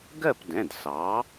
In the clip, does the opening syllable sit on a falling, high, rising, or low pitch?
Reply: falling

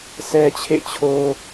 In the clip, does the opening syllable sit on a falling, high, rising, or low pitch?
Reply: high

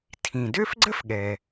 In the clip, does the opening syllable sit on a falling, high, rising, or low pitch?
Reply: low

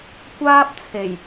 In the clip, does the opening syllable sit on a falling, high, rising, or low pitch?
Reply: high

